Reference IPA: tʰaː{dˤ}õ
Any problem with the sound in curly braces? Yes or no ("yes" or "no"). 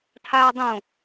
no